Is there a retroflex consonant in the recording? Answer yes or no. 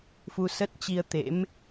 no